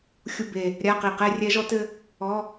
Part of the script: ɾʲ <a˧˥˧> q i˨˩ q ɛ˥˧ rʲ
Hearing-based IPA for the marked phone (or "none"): a˧˥˧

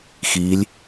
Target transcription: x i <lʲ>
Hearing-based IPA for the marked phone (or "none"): lʲ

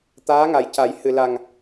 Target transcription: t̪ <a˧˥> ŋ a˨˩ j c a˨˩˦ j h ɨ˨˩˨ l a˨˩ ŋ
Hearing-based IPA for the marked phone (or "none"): aː˧˥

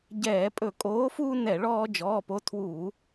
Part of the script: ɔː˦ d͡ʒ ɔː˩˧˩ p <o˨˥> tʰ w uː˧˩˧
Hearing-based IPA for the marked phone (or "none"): o˨˥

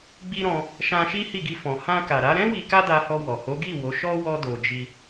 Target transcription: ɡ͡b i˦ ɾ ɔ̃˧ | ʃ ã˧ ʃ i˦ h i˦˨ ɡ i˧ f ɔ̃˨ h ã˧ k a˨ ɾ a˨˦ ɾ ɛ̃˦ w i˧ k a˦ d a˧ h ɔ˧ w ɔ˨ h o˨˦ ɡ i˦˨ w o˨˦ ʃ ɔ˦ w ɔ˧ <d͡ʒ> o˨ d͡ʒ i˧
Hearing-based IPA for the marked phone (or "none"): d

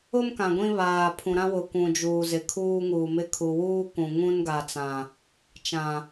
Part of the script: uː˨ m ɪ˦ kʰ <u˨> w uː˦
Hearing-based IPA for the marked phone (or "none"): u˨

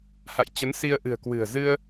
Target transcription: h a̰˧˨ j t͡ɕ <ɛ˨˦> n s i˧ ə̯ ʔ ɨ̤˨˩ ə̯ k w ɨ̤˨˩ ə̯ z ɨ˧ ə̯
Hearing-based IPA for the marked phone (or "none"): ə˨˦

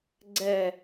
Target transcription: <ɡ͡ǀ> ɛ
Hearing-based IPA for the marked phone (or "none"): ɡ͡ǀ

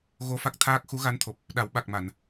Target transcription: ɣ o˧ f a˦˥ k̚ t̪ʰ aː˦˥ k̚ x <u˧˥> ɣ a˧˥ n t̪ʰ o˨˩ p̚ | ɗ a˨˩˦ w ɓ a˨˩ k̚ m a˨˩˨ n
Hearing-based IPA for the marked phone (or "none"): u˧˥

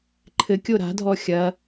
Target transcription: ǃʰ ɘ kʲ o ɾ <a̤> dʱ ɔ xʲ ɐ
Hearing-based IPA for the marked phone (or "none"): a̤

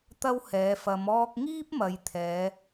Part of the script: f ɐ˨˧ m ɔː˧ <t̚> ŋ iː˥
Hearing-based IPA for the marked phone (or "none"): k̚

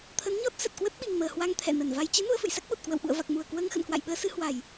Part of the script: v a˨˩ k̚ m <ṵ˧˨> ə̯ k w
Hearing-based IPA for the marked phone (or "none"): u˧˩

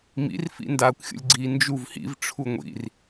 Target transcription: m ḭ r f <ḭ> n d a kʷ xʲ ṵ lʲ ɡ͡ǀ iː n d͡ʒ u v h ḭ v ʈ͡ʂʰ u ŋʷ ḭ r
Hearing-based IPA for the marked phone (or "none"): ḭ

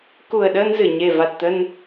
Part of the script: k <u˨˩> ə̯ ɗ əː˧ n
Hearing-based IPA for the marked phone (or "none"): u˨˩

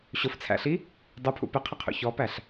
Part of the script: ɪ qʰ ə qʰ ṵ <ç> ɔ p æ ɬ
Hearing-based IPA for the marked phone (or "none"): ç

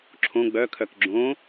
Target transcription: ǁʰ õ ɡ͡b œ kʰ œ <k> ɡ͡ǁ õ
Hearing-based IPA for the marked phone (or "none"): k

